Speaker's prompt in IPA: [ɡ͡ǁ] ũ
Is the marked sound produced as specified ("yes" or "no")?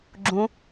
yes